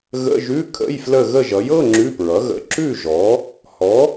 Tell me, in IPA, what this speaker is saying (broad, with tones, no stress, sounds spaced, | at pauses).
ɣ ə̰˧˥˧ ʒ ʉ˧˥˧ kʰ ə̰˧˥˧ j f l ə˦˨ ɣ ə˦˨ ʒ ʌ˩˥ j ɤ˧˥˧ ŋ͡ǁ ʉ˧˥˧ p ɹ ʌ˩˥ ɣ ə̰˧˥˧ ǁ ʉ˦˨ ʒ ɔ˩˥ | h ɔ˩˥